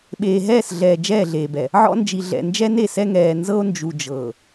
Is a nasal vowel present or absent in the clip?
absent